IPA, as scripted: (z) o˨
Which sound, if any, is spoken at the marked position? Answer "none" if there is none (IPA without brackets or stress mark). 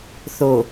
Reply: θ